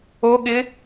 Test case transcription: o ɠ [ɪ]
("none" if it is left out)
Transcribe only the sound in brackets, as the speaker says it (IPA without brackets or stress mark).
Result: ɪ